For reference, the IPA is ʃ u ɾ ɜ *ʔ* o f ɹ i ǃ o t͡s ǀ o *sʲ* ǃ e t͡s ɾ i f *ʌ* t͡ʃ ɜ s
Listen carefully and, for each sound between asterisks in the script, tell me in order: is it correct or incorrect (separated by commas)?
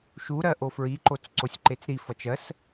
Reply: correct, correct, correct